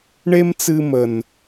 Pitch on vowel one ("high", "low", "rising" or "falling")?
high